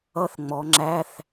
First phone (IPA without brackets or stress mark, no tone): ʌ